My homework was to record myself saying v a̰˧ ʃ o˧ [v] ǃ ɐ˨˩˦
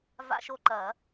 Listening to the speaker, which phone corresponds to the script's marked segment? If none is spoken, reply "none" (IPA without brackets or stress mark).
none